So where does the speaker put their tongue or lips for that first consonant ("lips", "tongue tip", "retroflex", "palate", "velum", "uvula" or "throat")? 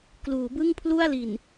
velum